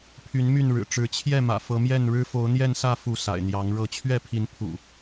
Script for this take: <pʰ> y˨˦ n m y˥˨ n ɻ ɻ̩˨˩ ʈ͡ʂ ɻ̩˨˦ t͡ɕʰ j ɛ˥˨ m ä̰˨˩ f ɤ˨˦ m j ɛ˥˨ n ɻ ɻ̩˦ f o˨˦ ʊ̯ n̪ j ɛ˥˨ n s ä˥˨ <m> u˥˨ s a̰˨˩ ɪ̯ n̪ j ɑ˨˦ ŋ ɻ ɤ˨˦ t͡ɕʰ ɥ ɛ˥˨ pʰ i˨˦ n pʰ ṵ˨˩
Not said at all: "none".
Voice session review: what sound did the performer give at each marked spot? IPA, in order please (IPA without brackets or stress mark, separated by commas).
pʰ, f